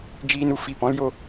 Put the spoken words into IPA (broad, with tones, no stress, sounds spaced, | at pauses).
d͡ʒ iː˧ n u˨ f i˦˨ p ɔ̃˦ l j o˦